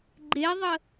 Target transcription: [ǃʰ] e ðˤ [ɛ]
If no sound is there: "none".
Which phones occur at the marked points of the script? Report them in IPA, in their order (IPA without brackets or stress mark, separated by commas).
ɡ͡ǃ, ə